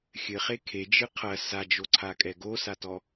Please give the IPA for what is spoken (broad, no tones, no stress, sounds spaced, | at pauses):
xʲ ɘ χ e kʰ e d͡ʒ ɨ qʰ ɐ s a d͡ʒ o ǀʰ a kʼ ɛ ɡ o s a t ɔ